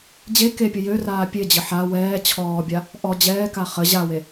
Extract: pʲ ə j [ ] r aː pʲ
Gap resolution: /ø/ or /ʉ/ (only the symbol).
ø